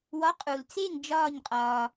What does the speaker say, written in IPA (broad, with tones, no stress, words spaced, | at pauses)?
wɒ˨˥qʼu˩lt͡se˥˩ŋ d͡ʒɒː˥˩ɲqʼɒː˩